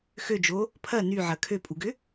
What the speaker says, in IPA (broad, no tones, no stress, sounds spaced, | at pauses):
x ø d͡ʒ o | pʰ ɐ n y ʕ ɐ kʰ ø pʼ u ɡ ʏ